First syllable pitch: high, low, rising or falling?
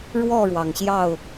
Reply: falling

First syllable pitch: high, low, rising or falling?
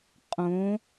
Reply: rising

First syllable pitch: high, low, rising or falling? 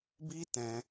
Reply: high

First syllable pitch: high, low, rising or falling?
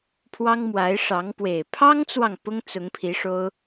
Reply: high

